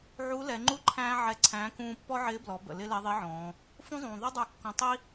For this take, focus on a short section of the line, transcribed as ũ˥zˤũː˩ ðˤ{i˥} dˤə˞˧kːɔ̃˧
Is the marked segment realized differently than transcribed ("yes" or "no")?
no